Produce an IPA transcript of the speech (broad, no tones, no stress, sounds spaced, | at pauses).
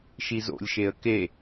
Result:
ʃ i z o̰ lʲ ʃ e ə̯ k e